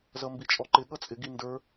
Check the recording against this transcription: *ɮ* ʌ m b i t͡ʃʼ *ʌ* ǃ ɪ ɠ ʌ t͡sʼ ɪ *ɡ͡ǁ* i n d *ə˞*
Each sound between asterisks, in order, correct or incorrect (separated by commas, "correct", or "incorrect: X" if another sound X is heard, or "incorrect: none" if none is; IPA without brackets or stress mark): incorrect: z, incorrect: ɔ, incorrect: ɡ, correct